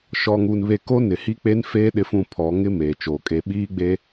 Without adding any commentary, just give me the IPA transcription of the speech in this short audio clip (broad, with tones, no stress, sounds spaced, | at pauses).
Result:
ʃ ɔ˨ ŋ u˨ n β e˨ k o˦ n ɪ˨ h i˦ k͡p e˦ n f eː˦ ɗ ɪ˦ f ũ˦˨ pʰ ɔ˨˦ ŋ ɪ˦ m eː˨ t͡ʃ oː˨ kʼ e˦ ɓ iː˦ ɡ͡b e˦